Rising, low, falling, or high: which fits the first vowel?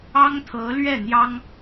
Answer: high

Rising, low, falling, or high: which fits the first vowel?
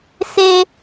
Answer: high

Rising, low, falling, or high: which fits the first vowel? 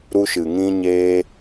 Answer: high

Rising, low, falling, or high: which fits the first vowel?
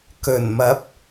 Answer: low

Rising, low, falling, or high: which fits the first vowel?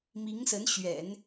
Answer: rising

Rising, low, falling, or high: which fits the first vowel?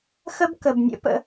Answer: high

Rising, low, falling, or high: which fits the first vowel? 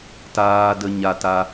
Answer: high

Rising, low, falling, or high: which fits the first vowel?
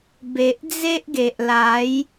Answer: low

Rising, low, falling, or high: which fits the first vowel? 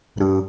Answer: low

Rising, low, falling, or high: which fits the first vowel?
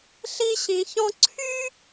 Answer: high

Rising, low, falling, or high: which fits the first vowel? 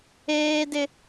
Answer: high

